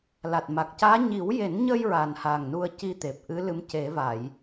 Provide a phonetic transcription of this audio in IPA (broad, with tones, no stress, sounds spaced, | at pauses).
l a˨˩ t̚ m a˨˩ k̚ c aː˧˥ ɲ i˨˩˦ w j e˨˩˦ n ɲ ə˧ j ɹ a˨˩ n h a˨˩ ŋ n u˧ ə̯ c i˧ t̪ e˨˩ p̚ ʔ ɨ˧˥ l ɨ˧˥ m c e˨˩˦ v a˨˩˨ j